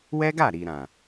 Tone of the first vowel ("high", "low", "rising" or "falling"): high